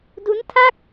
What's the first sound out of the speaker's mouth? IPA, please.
d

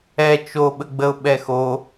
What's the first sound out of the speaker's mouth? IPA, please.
ɛ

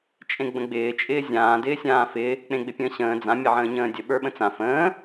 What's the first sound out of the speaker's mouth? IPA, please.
t͡ʃʼ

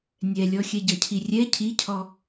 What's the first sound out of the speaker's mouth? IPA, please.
nʲ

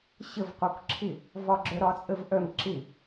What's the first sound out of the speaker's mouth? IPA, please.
ɕ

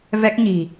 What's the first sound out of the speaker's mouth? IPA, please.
v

